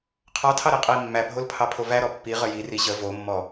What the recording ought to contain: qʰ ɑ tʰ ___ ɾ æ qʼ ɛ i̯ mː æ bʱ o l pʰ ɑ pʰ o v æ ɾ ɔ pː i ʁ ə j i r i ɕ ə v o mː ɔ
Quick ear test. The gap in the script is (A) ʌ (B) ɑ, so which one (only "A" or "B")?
B